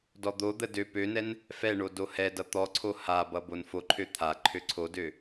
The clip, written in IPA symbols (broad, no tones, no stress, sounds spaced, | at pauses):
d ɔ d̪ o d̪ ə d ø p ø n ɛ n | f ɛ ɳ o d o h ɛ d ʌ t̪ ɔ ǀʰ o h a b ʌ b o n f o ǃʰ ø t̪ʰ a ǃʰ ø ǀʰ o d ø